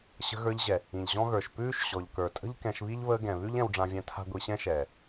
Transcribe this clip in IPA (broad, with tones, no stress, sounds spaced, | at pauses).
ɕ ə̤˧ ɣ ə˞˧ ʎ ʑ ɛ˨ | ĩ˨ ʎ ʑ ɔ̃˦ ɣ ə˞˨ ʃ p ʉː˦ ʃ ɕ ɔ˨ ʎ k ə˞˨ tʼ ə̤˦ ʎ k ɛ̃˧ ʃ β i˦ ʎ β əː˧ ɡ ɛ̃˨ β ʉ˦ ʎ ɛ̃˧ w ɖ͡ʐ ã˧ vʲ ɛ̃˧ tʰ a̤˦ ɡʷ i˧ ɕ ɛ̃˦ ʃ ɛː˨